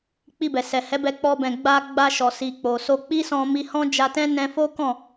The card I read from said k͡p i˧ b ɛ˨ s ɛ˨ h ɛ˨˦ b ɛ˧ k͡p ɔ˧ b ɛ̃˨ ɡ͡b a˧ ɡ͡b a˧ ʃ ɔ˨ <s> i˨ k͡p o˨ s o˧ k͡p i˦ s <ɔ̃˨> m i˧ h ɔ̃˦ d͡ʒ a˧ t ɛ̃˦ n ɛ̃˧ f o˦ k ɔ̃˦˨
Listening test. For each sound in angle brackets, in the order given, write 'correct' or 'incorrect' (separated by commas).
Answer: correct, incorrect